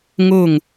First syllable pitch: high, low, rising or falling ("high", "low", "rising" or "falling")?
falling